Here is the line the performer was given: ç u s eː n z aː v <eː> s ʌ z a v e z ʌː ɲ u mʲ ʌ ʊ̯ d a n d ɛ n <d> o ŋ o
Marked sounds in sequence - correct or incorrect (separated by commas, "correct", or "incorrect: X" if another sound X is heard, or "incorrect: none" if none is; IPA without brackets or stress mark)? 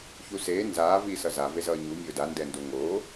incorrect: iː, correct